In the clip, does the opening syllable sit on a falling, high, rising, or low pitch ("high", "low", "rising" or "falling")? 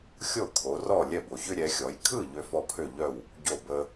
falling